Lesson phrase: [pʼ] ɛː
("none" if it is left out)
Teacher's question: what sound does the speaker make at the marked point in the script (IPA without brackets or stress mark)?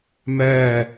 m